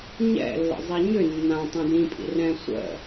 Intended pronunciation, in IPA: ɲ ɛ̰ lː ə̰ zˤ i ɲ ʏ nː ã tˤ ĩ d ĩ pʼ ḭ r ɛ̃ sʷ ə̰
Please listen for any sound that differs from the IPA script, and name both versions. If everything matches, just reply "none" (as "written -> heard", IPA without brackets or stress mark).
none